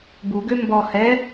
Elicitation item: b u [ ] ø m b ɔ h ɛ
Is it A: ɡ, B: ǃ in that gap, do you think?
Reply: A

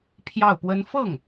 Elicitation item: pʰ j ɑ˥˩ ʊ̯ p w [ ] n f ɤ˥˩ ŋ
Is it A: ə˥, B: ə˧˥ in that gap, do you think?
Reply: A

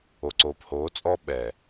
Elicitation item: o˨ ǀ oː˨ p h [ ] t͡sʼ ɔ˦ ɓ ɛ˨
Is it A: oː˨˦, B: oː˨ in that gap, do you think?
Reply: A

